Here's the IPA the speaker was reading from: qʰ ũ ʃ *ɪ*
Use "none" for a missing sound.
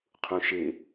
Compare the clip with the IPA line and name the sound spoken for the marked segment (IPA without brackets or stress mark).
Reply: ɪ